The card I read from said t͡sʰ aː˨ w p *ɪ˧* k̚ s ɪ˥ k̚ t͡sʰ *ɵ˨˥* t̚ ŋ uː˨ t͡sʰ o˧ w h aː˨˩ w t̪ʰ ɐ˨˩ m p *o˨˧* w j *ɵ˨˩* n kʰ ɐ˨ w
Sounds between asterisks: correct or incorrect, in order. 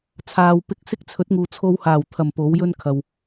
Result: correct, correct, incorrect: o˨˥, incorrect: ɵ˥

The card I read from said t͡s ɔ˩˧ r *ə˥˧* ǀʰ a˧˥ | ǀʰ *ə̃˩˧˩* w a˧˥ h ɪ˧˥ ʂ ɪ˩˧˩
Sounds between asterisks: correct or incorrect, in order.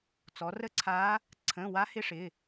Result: correct, correct

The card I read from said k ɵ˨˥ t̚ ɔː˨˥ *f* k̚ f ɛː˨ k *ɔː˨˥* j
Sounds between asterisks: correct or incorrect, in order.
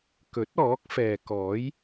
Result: incorrect: none, correct

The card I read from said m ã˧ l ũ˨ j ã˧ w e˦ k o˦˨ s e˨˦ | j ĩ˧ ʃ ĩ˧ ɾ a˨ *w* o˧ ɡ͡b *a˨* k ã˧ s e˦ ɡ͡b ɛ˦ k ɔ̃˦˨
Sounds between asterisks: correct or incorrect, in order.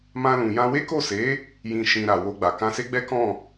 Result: correct, correct

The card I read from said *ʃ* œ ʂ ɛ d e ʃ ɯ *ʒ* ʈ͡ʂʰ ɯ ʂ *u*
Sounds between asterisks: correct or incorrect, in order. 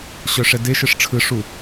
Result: incorrect: ɕ, incorrect: ʂ, correct

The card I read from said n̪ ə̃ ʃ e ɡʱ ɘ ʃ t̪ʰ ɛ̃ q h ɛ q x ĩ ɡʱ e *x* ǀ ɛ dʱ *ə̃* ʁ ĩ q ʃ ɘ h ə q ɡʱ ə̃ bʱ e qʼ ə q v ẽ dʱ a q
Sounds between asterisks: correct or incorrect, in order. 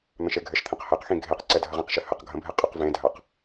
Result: incorrect: q, incorrect: ə

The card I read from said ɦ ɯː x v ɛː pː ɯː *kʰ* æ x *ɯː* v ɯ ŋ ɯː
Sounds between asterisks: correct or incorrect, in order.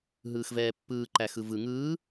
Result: incorrect: ǃ, incorrect: ɯ

